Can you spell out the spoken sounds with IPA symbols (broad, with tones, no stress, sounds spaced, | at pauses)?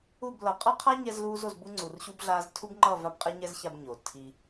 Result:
u˦˨ b l ʌ˨ qʼ ʌ˦ qʰ a˦ ɲ ɛ˦ z l uː˦ z o˧ z b u˦ ŋ͡ǀ u˨ r ɕ u˦ b ɮ aː˦ z tʰ u˦ b ŋ͡ǃ ʌ˦˨ v a˦ b qʼ ɛ˦ ɲ ɛ˦ z ç a˧ b ɲ o˨ tʰ i˧